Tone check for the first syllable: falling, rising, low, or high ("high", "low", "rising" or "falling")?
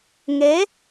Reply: rising